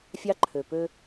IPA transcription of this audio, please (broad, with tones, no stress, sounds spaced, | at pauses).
fʲ ɑ˦ ǃʰ ø˨ p ø˦